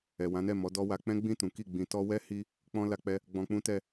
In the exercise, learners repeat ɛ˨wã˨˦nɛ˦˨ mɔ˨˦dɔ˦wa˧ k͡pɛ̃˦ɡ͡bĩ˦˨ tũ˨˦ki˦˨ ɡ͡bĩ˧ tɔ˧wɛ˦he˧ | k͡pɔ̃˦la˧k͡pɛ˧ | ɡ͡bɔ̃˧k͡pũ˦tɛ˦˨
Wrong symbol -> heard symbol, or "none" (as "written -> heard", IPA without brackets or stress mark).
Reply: e˧ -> i˧